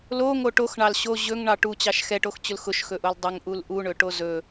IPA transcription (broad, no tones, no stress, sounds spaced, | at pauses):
l o ŋ o ʈ o x ɳ ɑ l ɕ o ʑ ɵ ŋ ɳ ɑ ʈ u t͡ɕ ɑ ʃ x ɛ ʈ o x t͡ɕ ʊ l x ʊ ʃ x ɵ ʔ o l dˤ ʊ ŋ ʔ u l ʔ u ɳ ɵ ʈ o z ɵ